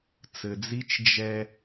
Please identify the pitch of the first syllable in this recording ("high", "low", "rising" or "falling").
low